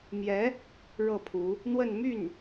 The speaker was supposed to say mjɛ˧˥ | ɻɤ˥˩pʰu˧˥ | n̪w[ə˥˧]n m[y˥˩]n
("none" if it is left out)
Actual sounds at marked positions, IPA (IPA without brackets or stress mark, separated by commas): ə˥˧, y˥˩